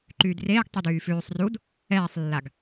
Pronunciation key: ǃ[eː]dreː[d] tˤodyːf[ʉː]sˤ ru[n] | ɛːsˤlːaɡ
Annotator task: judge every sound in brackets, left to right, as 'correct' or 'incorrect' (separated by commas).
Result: incorrect, incorrect, correct, incorrect